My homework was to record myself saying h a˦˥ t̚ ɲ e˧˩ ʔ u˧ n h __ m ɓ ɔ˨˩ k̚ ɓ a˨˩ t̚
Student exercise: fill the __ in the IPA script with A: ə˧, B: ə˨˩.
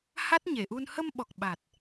A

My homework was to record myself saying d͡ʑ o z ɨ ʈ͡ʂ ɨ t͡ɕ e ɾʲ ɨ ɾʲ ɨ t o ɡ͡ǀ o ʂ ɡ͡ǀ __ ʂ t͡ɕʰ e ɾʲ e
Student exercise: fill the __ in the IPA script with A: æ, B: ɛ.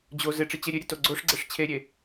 B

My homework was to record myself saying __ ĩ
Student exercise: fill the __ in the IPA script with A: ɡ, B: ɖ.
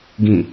A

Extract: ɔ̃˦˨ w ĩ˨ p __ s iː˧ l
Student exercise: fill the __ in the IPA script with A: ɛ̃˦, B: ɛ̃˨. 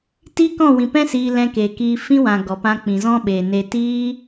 A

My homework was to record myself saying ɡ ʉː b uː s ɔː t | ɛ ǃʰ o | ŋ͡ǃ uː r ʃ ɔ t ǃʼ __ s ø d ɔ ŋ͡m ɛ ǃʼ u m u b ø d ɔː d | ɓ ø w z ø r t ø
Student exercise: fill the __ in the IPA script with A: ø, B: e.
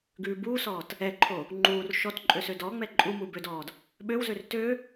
A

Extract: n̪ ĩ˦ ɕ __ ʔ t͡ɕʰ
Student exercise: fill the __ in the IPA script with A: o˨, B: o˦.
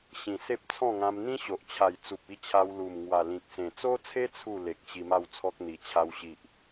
A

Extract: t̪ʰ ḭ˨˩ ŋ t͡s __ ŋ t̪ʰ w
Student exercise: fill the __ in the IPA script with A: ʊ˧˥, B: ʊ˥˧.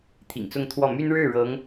B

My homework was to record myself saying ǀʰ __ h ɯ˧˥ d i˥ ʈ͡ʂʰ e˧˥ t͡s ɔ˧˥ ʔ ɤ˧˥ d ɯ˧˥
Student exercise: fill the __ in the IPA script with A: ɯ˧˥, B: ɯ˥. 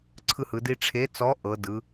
B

